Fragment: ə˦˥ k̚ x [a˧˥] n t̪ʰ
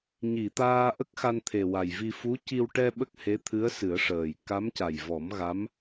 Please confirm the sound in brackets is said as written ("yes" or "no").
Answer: no